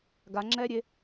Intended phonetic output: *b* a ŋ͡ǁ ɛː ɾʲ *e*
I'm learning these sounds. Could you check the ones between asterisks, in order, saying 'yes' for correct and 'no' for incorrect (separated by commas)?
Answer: no, yes